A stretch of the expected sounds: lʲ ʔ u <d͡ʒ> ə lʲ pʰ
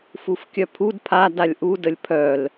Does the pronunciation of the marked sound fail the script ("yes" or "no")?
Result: yes